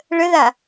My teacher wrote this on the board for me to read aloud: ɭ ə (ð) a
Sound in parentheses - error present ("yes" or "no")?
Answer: no